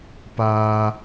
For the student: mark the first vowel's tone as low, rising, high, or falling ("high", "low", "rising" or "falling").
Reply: high